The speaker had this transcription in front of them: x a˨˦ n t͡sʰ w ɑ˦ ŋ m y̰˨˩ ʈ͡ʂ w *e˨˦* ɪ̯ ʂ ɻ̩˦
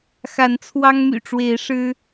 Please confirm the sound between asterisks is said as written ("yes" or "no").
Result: yes